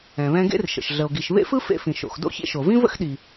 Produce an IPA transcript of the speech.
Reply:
ɛ̃˩ β ɛ̃˧ ɡ ḛ˥ r ʃ ə̰˩ ʃ ɮ ə˩ o̯ ɡ i˩ ʃ β ḛ˥ f ɯ˥ f ḛ˧ f ĩ˩ ʃ o̰˩ x d o̰˥ ç ḛ˧ ʃ o˩ v ĩ˥ v ə̰˥ x ɗ i˩

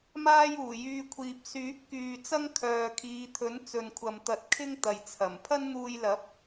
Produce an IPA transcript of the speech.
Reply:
m aː˥ j uː˨˩ j yː˧ kʷʰ iː˨ p̚ s yː˨˥ p̚ k yː˨ t͡s ɐ˥ ŋ kʰ œː˨ kʰ iː˨˧ t̪ʰ ɵ˨˥ n t͡s ɵ˨ n kʷʰ ɐ˨ m t̪ ɐ˨˥ t̚ kʰ ɪ˥ ŋ t̪ ɐ˨ j t͡sʰ ɐ˨˩ m pʰ ɐ˥ n n̪ uː˧ j l ɐ˨˥ p̚

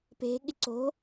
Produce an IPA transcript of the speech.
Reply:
p e̤ ɠ ɪ ǀ o̤

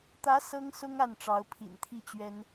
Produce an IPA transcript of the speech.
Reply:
t̪ ä˧˥ s ɤ˥ ŋ s ʊ˥ ŋ a˥˩ n ʈ͡ʂ ɑ˧˥ ʊ̯ pʰ ḭ˨˩ n t̪ʰ i˥˩ t͡ɕ ɥ ɛ˥ n

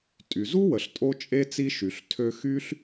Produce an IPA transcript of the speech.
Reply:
tʼ y˩ z u˥ w ə˩ ɬ tʼ o˧ t͡ʃʼ e˧ t͡s i˧ ʃ y˩ ɬ tʰ ø˧ x y˥ ɬ

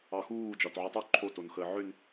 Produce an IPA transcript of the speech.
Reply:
ɑ x uː d͡ʒ ɒ t ʕ u tˤ o ǃʰ o t o n x əː ʕ ʏ n

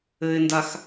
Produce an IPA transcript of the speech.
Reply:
ɘ ɪ̯ n d a x

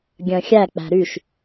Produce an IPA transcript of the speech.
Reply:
ɡʲ œ̃ xʲ æ k͡p æ̤ ɾ y ʃ

